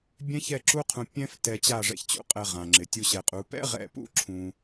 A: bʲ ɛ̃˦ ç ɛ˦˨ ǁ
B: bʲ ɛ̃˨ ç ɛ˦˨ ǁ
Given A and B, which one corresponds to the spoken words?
A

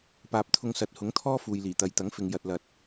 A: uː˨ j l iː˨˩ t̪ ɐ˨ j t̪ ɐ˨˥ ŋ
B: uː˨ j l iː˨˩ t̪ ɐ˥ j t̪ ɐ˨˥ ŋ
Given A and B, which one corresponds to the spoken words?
A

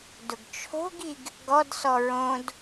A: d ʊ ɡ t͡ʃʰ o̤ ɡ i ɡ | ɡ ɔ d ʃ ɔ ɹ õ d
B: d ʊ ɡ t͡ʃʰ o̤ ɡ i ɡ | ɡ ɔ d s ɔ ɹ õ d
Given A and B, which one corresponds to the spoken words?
B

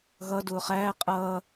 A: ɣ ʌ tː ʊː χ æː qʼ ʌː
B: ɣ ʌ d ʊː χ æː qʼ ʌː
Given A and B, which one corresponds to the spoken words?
B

